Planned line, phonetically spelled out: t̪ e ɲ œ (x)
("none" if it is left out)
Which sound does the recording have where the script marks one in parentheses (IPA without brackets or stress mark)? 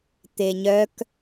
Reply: k